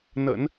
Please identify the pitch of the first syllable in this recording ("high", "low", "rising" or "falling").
low